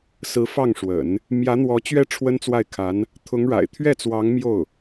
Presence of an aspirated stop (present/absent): present